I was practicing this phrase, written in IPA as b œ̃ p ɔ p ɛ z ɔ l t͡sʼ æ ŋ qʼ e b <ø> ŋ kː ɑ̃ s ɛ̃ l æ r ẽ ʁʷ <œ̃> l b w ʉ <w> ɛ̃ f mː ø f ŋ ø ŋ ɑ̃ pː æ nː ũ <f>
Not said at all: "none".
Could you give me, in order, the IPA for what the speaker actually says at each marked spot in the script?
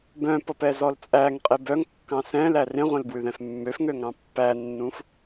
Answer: œ, œ̃, ð, f

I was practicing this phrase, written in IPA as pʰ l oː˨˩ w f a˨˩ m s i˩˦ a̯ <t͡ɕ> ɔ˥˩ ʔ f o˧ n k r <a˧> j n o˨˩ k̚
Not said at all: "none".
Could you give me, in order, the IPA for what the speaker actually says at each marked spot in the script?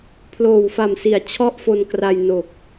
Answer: t͡ɕʰ, a˧

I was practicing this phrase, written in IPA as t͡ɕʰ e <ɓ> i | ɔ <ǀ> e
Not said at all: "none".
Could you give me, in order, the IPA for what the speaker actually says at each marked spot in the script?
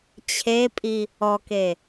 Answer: pʼ, k

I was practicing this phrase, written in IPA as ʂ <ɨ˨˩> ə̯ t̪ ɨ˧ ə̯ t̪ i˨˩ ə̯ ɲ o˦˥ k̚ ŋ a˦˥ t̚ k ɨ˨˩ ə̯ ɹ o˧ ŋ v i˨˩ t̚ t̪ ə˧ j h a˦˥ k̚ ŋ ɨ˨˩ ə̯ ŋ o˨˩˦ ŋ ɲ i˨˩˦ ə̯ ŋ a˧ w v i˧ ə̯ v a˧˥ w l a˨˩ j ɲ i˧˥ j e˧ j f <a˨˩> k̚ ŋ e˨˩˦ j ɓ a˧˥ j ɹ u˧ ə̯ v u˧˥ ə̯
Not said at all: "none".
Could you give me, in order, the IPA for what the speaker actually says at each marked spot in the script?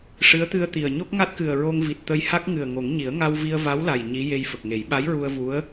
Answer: ɨ˧˥, ə˨˩

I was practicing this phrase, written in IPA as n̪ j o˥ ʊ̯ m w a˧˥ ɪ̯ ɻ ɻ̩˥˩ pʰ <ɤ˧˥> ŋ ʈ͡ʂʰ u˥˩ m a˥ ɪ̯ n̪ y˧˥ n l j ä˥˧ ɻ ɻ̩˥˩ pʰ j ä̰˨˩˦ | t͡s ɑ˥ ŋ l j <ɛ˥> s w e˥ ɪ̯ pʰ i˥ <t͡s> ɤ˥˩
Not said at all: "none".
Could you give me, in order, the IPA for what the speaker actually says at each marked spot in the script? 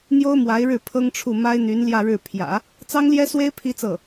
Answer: ɤ˥, ɛ˥, t͡s

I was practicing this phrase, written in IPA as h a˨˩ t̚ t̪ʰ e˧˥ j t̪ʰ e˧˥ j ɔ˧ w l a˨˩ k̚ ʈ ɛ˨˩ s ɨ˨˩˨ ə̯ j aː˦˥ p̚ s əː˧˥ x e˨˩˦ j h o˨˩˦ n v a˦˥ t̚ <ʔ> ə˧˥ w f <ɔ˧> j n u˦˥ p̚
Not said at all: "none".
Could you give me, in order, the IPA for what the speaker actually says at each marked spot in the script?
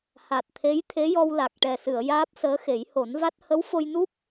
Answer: h, o˧

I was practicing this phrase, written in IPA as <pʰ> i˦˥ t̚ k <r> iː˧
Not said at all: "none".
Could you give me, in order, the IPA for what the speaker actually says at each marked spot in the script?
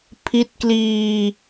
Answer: pʰ, l

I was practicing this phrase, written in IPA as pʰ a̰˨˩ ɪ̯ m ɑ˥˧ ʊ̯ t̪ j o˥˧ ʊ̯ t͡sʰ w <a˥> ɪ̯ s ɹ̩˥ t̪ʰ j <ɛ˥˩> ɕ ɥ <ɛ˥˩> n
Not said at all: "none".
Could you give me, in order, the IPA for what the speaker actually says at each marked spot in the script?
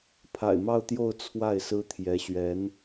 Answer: a˥˩, ɛ˧˥, ɛ˧˥

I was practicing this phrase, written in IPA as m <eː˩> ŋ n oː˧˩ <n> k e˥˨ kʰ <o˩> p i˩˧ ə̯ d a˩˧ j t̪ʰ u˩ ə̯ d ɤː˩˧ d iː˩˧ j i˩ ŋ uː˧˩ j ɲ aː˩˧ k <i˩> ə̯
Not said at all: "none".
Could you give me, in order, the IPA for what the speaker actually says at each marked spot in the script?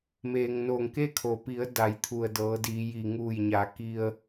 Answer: eː˩, ŋ, o˩, i˧

